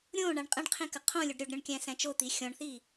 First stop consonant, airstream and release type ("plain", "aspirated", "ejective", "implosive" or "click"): ejective